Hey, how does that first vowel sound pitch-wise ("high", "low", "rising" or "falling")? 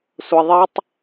low